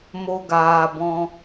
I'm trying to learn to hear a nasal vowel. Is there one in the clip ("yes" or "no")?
yes